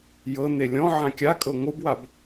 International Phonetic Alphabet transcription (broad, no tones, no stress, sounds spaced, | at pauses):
j ɤ n e lʲ ɔ̃ ʕ ã kʲ a kʼ ɤ ŋʷ ɯ b w a b